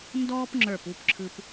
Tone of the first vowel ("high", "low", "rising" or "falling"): high